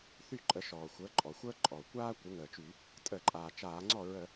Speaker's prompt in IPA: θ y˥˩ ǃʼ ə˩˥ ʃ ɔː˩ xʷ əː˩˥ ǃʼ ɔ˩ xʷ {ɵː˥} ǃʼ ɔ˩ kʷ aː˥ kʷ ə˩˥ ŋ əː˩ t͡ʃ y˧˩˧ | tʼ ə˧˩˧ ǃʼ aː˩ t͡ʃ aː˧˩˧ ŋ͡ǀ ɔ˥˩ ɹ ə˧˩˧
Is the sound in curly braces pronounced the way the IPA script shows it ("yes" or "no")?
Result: no